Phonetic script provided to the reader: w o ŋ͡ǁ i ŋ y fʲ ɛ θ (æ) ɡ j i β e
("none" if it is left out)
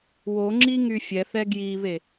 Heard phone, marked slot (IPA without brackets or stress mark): ɛ